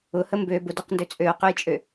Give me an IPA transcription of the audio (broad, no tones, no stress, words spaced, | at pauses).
ʊhə mbø bʊdʏqndø t͡sʼøo̯qøjt͡ʃʼø